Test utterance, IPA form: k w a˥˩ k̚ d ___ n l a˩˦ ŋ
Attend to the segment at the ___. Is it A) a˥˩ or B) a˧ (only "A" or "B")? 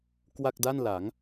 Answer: A